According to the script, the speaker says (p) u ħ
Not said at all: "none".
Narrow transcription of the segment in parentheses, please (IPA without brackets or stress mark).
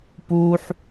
p